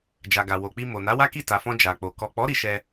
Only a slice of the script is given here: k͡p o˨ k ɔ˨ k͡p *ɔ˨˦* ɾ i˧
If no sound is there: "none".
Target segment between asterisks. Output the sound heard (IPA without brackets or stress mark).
ɔ˨˦